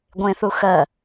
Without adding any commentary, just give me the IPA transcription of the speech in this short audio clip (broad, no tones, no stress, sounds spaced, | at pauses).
ɡʷ ẽ θ u x ɜ